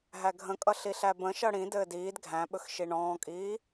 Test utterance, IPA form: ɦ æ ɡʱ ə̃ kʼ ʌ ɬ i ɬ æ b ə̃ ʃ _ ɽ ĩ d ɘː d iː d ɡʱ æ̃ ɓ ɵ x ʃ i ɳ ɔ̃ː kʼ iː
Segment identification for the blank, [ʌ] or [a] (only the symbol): ʌ